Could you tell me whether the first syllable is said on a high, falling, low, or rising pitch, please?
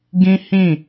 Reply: high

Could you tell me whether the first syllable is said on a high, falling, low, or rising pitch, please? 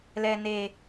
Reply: low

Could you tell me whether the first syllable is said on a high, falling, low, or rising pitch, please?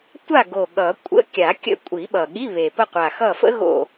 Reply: falling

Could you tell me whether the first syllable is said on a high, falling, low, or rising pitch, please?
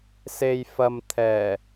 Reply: low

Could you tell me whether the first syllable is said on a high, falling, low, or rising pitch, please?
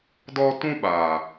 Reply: high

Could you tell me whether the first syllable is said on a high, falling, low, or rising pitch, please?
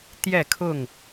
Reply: falling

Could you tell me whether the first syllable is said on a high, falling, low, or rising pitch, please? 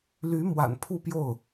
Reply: rising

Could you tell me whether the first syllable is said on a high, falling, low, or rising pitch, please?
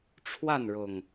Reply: falling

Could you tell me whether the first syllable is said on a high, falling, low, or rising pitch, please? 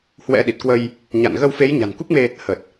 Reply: rising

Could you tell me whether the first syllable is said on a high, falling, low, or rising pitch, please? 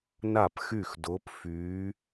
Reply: falling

